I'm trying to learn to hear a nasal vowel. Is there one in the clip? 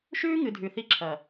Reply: no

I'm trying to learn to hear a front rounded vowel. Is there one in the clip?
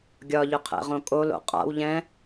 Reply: yes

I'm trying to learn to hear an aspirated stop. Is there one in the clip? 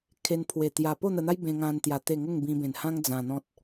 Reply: yes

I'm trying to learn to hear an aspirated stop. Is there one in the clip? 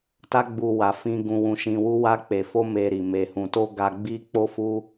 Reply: no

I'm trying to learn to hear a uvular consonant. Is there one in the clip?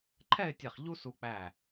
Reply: yes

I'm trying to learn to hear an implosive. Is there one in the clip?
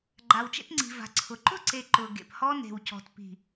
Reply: no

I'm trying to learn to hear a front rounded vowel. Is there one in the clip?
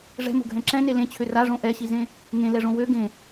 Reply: yes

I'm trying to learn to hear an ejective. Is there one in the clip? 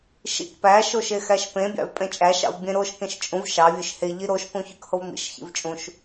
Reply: yes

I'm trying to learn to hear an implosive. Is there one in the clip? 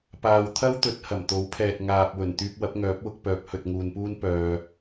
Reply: no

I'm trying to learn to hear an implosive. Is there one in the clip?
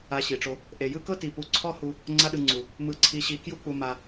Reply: yes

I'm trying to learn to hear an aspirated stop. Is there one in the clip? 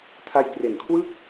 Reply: yes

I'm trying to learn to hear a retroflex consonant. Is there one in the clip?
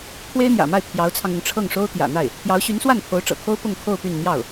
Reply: yes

